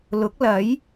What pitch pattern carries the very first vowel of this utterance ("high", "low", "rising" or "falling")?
rising